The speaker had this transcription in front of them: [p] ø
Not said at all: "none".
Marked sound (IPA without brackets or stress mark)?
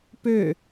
p